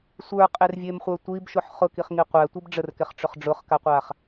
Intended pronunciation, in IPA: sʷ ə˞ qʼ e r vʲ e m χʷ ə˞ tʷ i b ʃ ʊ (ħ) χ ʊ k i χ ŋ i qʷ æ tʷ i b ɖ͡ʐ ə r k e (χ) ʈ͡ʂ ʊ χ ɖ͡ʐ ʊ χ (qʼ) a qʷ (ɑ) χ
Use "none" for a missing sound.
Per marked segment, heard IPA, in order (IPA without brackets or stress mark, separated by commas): ħ, χ, k, a